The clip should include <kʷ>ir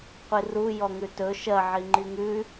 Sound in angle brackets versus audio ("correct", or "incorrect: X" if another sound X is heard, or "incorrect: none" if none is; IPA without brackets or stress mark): incorrect: qʷ